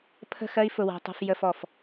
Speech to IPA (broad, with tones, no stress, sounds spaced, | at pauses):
pʰ ə̤˦˨ x ɜ˦ i̯ f ʊ˨ w æ̤˨ tˤ ṳ˨ f j ə˨ f ɔ˨ f